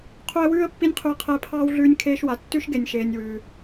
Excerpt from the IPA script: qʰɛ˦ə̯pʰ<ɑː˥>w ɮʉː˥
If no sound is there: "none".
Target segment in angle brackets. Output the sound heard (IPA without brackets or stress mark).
ɑː˥